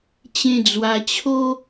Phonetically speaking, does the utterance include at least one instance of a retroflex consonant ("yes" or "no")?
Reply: no